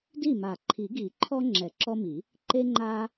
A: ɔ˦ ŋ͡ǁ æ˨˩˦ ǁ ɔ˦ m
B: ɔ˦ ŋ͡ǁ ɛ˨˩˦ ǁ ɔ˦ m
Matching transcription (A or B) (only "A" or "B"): B